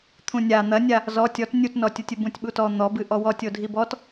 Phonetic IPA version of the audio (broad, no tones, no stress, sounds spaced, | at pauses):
t̪ʰ ũ nʲ a n̪ ɐ nʲ a | z ɔ tʲ ɔ t nʲ u t n ɔ tʲ u tʲ ɨ b ũ tʲ ɓ u t ɔ n̪ ɔ b ɨ ʔ ɔ w ɔ tʲ o dʱ i b ɔ t